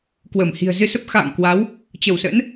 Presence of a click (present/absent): absent